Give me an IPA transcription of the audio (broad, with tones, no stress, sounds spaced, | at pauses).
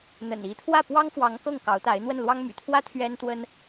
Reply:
n̪ ə̰˨˩ n i˧˥ t̪ʰ w ä˥˩ p w ɑ˥ ŋ f w ɑ˧˥ ŋ k ɤ˥˩ ŋ k ɑ˧˥ ʊ̯ t̪ a˧˥ ɪ̯ n̪ w ə˥˩ n l w ɑ˥ ŋ m y̰˨˩ t̪ʰ w ä˥ t̪ʰ ɥ ɛ˥ n t̪ w ə˥ n